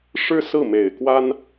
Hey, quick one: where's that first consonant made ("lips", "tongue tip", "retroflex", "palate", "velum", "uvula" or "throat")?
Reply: retroflex